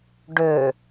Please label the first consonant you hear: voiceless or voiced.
voiced